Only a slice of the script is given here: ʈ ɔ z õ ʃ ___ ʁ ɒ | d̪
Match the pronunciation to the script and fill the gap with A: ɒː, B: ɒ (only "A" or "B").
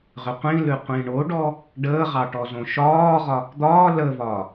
A